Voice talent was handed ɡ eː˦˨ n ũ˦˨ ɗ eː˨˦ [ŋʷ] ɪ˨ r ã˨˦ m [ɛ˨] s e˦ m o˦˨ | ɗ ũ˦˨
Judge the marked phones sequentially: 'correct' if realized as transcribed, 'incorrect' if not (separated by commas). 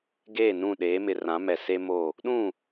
incorrect, correct